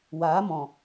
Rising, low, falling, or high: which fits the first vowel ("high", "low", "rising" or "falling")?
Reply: rising